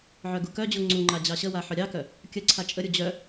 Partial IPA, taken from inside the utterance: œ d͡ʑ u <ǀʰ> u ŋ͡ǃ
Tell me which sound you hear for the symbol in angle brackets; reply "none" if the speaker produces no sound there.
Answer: ŋ͡ǀ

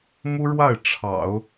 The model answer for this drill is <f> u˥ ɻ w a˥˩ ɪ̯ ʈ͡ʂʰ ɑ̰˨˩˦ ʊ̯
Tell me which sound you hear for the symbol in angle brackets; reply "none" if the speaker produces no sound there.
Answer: m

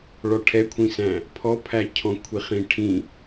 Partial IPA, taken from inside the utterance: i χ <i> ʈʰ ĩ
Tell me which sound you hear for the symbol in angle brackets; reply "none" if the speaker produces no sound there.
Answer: ĩ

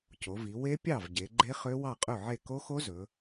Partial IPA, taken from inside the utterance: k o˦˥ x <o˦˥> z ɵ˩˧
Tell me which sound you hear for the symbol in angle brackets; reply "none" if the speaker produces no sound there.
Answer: o˦˥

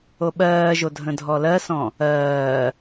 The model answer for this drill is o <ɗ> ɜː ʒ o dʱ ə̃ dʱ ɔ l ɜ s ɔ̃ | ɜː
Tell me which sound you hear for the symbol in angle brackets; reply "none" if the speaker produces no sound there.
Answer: ɓ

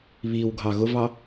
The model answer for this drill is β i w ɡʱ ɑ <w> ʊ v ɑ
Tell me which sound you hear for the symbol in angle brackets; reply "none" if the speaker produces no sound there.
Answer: ɣ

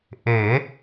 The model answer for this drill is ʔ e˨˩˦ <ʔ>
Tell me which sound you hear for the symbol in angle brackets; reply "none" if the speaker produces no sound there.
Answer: none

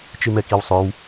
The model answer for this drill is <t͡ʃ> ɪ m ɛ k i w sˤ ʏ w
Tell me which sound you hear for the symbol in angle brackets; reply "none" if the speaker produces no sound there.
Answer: t͡ʃ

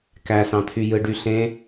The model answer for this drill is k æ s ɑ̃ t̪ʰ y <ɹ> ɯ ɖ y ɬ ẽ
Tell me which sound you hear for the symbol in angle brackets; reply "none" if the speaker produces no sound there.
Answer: j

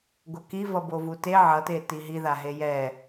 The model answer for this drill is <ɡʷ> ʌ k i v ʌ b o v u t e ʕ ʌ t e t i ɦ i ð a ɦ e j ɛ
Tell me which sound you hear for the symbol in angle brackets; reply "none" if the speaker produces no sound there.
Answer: ɡʷ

